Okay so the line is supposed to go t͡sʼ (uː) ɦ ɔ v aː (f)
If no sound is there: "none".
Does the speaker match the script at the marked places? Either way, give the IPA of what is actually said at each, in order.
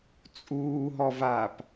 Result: uː, p

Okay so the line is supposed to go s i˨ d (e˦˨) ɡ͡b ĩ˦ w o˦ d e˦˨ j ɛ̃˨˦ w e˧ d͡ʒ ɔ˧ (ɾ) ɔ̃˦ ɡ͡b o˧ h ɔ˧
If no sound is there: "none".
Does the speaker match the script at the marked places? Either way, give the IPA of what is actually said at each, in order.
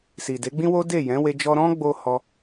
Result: e˨˦, ɾ

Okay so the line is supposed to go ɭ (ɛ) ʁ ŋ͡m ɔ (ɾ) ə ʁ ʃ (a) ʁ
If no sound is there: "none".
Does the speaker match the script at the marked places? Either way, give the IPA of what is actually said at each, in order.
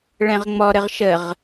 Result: ɛ̃, ɾ, ə

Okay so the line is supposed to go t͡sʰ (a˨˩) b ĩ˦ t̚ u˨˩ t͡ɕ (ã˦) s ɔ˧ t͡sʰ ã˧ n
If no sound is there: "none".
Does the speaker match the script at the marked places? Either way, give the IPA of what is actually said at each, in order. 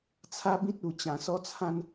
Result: a˦, ã˨˩

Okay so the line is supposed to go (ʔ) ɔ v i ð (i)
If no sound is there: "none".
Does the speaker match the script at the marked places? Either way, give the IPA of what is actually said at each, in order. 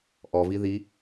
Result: ʔ, i

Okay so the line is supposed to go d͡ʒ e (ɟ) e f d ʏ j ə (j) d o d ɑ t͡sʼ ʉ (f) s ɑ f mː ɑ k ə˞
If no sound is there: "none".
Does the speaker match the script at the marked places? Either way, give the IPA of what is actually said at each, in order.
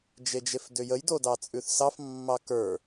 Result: d͡ʒ, j, θ

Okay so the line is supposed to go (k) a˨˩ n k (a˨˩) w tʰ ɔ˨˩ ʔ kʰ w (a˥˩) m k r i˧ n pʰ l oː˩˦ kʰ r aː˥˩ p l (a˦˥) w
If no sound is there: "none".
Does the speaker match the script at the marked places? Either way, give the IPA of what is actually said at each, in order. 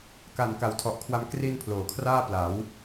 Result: k, a˨˩, a˧, a˩˦

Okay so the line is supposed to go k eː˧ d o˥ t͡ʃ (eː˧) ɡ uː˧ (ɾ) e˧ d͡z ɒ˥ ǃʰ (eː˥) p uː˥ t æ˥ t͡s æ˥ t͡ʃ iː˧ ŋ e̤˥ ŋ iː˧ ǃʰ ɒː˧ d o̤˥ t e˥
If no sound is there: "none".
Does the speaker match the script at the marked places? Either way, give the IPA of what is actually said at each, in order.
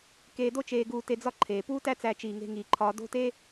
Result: eː˧, t, eː˩

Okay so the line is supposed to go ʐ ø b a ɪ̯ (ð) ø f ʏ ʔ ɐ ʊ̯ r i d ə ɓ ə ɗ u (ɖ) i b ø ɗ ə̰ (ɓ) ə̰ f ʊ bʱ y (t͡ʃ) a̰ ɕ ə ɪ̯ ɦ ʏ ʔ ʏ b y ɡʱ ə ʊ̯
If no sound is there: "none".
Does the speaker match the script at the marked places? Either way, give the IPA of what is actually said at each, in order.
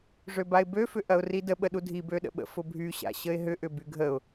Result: b, dʱ, ɓ, ɕ

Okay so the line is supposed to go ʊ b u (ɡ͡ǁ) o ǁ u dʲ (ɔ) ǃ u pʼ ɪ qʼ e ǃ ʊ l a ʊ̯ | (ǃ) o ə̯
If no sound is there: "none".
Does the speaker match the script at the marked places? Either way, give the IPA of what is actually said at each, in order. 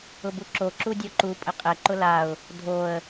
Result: ǁ, ɔ, dʱ

